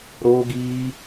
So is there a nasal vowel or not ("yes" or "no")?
no